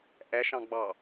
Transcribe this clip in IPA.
ʔ ɛ ʃ ɑ̃ ɡ͡b ɑ

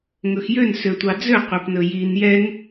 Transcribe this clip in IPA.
ŋ ɵ x j ø n s ø tʷ ɑ d͡z ø qʷ ɛ p n ɵ j i n j ɛ ŋ

